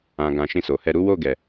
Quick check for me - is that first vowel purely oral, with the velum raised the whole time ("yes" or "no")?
no